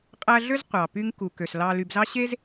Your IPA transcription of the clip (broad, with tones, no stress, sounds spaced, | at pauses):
qʼ æ˦ ɮ ø˥ z qʷ ɑ˩ p y˦ ŋ k u˩ k ø˩ s l ɑ˨ l y˨ b z ɑ˥ ɕ e˥ z